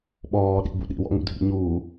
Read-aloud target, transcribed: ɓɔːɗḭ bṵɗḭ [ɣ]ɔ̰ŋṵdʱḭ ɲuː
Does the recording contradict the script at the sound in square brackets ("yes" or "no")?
yes